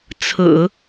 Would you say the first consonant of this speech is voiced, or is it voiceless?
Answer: voiceless